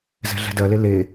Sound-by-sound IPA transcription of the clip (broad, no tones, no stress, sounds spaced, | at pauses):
z ɛ̤ ɮ ɛ̤ d ɜ l e l e